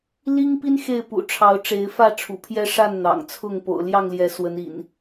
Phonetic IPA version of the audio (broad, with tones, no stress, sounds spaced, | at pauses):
l i˦ ŋ p i˦ n x e˥˨ ɪ̯ p ṵ˨˩ ʈ͡ʂʰ ɑ˨˦ ʊ̯ ʈ͡ʂ e˨˦ ɪ̯ f ä˥˨ ʈ͡ʂʰ ṵ˨˩ pʰ j ɛ˦ ʂ a˥˨ n n̪ ɑ̰˨˩ ŋ t͡sʰ ʊ˥˨ ŋ p o̰˨˩ ʊ̯ l j ɑ˥˨ ŋ l j ɛ˨˦ s w ə˨˦ n ḭ˨˩ n